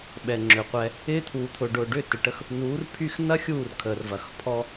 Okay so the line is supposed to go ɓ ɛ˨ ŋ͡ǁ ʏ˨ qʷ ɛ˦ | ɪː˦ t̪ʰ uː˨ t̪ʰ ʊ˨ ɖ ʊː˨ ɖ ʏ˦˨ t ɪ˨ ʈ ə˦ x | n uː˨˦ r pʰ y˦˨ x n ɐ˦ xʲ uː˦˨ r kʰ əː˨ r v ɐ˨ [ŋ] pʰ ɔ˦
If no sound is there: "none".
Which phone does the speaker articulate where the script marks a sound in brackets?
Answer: x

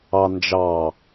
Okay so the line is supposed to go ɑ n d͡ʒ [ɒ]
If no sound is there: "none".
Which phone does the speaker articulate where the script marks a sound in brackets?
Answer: ɑ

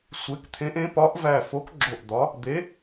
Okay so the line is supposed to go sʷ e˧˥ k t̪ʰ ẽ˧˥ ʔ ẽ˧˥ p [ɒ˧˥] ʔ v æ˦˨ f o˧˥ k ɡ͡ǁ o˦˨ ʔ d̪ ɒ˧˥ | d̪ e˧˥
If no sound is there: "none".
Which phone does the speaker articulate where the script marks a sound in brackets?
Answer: ɒ˧˥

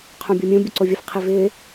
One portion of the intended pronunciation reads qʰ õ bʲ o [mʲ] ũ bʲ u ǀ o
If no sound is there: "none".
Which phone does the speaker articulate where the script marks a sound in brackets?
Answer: mʲ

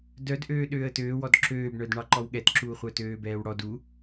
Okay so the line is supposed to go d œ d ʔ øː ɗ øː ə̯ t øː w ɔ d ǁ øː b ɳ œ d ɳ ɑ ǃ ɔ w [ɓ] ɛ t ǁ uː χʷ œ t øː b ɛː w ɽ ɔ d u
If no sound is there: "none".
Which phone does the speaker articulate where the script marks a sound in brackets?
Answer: ɠ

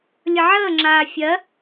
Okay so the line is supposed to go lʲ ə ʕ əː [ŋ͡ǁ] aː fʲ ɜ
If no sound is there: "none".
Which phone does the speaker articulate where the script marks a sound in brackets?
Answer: ŋ͡ǁ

